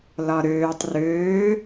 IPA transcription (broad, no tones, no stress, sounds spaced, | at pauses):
l ɒ ɾ øː tˤ r øː